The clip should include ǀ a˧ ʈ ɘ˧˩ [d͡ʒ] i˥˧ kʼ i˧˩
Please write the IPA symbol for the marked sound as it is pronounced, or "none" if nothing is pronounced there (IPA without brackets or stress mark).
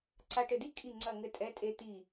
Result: d